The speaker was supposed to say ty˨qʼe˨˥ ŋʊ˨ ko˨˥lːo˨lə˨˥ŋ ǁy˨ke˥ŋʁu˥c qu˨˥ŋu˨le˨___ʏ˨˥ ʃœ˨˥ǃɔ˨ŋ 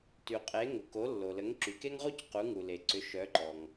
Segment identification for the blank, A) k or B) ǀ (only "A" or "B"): B